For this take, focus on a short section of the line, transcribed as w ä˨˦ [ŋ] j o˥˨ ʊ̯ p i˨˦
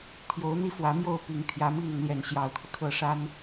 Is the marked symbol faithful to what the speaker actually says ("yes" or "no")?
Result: no